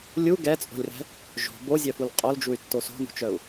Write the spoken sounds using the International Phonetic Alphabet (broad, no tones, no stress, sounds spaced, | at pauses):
lʲ u ɡ ɛ t͡sʼ o̤ lʲ r ɛ̤ | ʒ o̤ b o zʲ œ f u l qʼ o l d͡ʒ u y̯ tː o s o̤ n ṳ t͡ʃ œ u̯